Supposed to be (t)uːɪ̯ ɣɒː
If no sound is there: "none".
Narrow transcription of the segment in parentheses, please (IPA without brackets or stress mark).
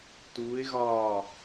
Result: t